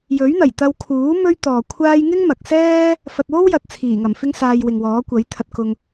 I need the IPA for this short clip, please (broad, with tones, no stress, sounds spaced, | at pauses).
j ɵ˨˥ ɥ n̪ ɐ˨˩ j t̪ ɐ˧ w kʰ uː˨˥ m ɵ˥ ɥ t̪ ɔː˨ kʷʰ aː˥ j ŋ ɪ˥ ŋ m ɐ˨ k̚ s ɛː˥ | f ɐ˧ t̚ w o˥ w j ɐ˨ t̚ t͡sʰ iː˨˩ ŋ ɐ˨˩ m f ɪ˥ ŋ s aː˧ j w ɪ˨ ŋ w ɔː˨˥ kʷ ɐ˨˥ j t̪ʰ ɐ˧ t̚ k ʊ˧ ŋ